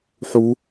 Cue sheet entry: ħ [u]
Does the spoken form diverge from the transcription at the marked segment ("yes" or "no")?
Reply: no